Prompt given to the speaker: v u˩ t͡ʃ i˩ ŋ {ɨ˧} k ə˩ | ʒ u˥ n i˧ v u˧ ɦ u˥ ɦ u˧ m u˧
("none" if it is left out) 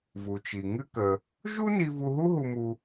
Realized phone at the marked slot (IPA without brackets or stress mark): ɨ˧